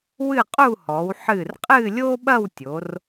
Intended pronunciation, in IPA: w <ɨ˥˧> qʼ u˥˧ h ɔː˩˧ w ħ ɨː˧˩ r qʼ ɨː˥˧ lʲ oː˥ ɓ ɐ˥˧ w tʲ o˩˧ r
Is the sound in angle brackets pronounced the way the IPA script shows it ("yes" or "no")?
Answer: yes